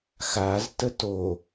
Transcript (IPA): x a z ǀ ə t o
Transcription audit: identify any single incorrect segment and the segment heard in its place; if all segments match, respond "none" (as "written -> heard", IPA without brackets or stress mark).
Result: ǀ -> t